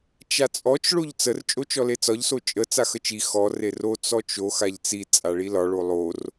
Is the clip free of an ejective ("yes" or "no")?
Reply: no